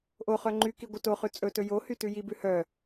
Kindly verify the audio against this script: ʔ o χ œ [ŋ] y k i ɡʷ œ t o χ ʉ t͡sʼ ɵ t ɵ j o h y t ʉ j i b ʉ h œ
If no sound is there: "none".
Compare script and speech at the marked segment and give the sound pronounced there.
ŋ͡ǃ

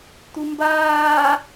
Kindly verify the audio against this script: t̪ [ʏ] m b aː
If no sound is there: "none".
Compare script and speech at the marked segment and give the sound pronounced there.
u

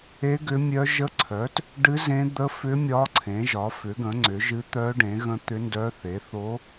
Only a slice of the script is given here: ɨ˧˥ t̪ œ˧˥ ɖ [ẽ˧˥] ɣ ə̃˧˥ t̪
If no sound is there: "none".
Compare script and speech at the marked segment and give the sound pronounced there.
ẽ˩˥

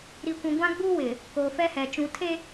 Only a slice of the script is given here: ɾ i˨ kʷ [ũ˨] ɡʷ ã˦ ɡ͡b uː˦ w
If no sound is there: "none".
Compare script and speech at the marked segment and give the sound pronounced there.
ũ˨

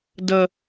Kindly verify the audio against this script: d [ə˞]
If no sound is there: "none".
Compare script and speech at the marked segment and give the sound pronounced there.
ə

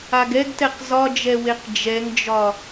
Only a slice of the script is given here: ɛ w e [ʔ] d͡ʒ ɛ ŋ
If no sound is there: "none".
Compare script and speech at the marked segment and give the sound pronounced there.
q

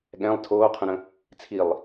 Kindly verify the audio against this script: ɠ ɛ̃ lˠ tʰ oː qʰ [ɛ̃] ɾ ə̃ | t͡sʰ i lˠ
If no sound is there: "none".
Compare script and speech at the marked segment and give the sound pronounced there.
ə̃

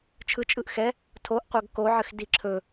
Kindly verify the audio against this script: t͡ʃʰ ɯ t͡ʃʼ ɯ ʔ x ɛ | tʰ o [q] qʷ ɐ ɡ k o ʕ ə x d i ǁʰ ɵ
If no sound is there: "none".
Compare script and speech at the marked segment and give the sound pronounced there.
ʔ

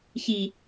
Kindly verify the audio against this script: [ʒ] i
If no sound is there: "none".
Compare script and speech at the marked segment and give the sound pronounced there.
ç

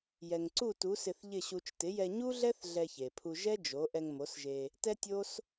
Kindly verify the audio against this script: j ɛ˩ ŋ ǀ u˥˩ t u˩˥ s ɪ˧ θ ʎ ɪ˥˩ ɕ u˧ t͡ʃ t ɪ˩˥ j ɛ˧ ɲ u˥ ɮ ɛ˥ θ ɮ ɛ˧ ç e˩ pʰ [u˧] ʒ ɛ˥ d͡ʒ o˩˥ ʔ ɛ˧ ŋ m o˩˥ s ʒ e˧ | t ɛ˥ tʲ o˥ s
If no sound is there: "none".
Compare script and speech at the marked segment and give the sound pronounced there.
u˧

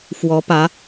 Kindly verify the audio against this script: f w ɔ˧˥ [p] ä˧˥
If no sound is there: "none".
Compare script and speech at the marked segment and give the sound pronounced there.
p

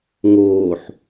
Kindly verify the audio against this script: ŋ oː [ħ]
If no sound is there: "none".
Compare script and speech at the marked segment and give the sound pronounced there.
ħ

